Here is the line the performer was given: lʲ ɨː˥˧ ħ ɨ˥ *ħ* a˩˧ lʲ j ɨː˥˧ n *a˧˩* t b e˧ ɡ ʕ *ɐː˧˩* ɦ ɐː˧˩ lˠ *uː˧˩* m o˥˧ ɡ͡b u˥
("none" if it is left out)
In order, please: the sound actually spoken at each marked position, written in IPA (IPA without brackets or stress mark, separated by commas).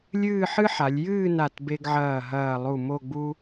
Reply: ħ, a˧˩, ɐː˧˩, u˧˩